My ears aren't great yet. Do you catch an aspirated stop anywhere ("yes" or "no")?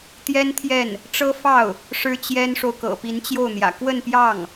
yes